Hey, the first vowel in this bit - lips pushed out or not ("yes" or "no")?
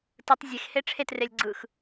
no